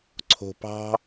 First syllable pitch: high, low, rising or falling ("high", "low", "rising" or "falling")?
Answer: low